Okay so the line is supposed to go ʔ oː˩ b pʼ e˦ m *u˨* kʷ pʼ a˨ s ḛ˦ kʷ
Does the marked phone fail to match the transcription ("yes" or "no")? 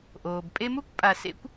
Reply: yes